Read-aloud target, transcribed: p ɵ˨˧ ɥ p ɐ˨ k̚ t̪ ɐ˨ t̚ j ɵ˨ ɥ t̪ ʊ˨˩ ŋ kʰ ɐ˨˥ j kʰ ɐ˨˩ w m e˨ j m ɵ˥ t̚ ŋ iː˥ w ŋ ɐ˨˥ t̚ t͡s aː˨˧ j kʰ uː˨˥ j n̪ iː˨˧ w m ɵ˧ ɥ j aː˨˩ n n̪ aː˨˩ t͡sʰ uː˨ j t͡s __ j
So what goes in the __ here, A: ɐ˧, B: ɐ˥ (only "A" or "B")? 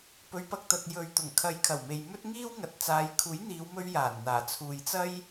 B